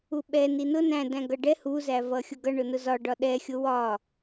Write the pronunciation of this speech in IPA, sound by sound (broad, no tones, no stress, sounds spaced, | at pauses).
u ɓ ɛ n i n ʊ n æ̃ d æ̃ ɡ ʌ ɖ ɛ h u z æ v ʌ xʲ ʊ ɡ ʌ ɳ ʊ n ʊ z ɒ ɖ ɒ ɗ ɛ xʲ ʊ w ɒ